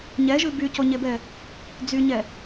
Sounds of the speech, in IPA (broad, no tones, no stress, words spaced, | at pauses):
ɲɛʒʉ bycoɲebɛ | d͡zyɲɛ